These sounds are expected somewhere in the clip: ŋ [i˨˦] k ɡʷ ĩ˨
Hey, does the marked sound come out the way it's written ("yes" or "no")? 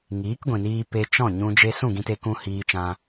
no